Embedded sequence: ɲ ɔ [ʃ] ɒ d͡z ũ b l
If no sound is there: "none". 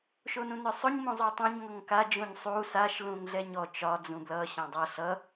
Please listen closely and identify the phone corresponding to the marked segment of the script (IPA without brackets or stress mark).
t͡ʃ